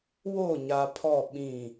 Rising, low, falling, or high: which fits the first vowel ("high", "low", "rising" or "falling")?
falling